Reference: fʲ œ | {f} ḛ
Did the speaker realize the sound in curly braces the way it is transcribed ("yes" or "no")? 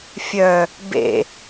no